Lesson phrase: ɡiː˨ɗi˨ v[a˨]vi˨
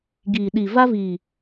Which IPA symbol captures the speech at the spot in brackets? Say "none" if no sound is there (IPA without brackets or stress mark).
a˦